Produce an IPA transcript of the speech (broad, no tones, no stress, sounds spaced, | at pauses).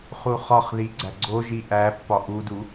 χ u χ ɒ χ ð i ɡ͡ǀ æ ɡ͡ǀ o ʒ i ʔ æ pː ɒ ʔ u d u